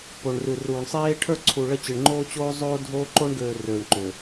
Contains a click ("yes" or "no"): yes